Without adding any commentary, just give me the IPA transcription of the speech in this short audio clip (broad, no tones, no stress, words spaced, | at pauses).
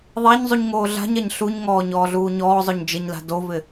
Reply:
ðˤaɲ zˤuɲŋoːɮa̤ɲaɲ ɬuɲŋɔː ɲɔːɮuːɲɔːzˤʊɲ d͡ʒɪɲla̤ dovɪ